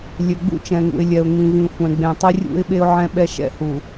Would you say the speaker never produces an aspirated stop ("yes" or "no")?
yes